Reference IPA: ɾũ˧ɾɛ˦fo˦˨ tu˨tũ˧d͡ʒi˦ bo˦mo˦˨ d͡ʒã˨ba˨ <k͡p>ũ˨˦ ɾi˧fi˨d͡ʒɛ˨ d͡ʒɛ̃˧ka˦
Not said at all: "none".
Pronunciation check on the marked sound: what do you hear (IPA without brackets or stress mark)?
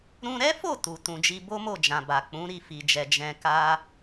k͡p